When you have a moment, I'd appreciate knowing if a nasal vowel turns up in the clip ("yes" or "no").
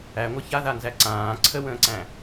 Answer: yes